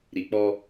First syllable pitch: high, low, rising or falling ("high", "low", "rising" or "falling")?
low